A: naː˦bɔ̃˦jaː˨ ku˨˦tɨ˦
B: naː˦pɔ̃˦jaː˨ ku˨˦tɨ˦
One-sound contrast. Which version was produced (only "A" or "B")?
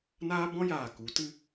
A